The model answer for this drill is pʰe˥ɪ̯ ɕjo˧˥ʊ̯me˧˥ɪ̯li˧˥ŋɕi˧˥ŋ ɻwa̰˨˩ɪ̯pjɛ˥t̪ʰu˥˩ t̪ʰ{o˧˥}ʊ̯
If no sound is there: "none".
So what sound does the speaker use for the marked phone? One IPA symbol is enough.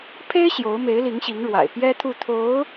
o˧˥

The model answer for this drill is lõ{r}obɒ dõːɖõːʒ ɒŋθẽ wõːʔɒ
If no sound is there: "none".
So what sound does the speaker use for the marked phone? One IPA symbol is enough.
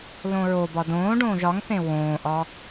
ɹ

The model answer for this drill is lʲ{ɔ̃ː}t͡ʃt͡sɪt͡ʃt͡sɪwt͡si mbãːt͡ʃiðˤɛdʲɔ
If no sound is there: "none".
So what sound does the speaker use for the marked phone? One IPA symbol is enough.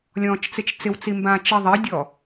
ɔ̃ː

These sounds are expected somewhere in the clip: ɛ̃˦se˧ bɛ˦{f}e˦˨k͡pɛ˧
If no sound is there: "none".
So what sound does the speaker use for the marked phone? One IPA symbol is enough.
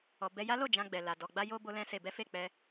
f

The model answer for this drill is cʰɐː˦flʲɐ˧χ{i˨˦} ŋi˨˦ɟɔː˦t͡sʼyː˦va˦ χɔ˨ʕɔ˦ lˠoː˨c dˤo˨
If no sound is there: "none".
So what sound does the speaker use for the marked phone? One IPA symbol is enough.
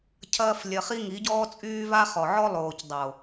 i˦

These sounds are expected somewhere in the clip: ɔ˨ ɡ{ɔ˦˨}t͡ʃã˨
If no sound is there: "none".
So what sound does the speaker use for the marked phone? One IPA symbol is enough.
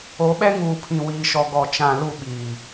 ɔ˨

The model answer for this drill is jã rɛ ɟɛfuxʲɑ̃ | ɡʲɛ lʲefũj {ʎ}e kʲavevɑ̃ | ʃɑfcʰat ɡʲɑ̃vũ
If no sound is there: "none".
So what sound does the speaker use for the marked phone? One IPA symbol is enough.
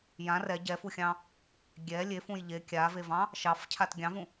ʎ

